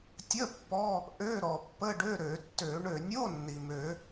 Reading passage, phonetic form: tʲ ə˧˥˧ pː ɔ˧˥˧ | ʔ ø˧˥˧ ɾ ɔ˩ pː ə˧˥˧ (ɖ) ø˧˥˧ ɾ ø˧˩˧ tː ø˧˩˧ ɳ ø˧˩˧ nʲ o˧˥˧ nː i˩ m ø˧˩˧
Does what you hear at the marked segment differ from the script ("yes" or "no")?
no